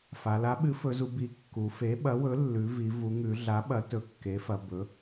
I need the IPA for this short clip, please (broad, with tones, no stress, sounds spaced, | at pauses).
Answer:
f a˩˧ l a˩˥ ɓ ɨ˩˥ f ɵ˩˧ z u˩˧ b i˩˥ kː u˩˧ f e˩˥ ɓ ɐ˩˥ w ɵ˩˥ lː ʉ˩˧ v i˩˧ v u˩˧ ŋ ʉ˩˧ ɮ a˩˥ ɓ ɐ˩˥ t ɵ˩˧ kː e˩˥ f ɐ˩˧ b ɵ˩˥